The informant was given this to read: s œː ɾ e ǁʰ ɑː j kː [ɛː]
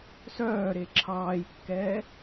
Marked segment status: correct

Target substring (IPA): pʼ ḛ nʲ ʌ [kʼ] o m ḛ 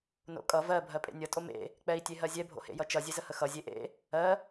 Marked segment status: incorrect: tʼ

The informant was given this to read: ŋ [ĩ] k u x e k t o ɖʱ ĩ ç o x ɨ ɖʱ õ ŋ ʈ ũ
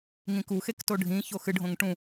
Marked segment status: correct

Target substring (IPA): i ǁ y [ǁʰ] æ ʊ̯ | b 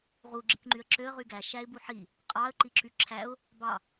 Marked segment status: correct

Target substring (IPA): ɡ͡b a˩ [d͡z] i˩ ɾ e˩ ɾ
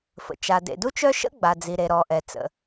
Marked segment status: correct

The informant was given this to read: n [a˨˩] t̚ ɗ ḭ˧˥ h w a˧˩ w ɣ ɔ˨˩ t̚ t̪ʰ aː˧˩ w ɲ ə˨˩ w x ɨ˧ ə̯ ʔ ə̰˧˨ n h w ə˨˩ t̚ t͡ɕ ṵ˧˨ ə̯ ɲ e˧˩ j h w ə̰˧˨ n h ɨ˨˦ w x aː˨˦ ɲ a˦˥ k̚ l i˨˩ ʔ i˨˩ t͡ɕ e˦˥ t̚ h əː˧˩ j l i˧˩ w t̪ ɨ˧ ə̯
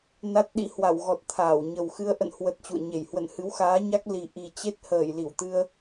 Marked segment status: incorrect: a˦˥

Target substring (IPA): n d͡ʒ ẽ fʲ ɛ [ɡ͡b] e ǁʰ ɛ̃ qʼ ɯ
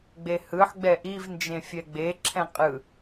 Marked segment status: correct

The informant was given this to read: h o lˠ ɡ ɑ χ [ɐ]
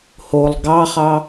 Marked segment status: incorrect: ɑ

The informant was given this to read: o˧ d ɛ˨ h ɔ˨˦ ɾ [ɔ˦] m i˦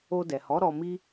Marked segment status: incorrect: ɔ˧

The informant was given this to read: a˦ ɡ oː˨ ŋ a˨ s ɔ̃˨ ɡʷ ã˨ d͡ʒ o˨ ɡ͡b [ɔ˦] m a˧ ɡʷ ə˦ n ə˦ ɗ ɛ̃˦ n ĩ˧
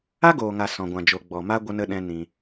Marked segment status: incorrect: ɔ˨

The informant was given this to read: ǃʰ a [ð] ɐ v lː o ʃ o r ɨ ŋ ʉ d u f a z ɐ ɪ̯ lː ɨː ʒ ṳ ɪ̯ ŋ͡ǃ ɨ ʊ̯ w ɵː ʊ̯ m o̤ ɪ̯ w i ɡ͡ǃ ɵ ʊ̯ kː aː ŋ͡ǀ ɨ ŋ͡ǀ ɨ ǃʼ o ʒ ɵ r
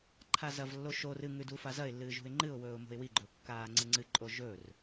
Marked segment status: incorrect: z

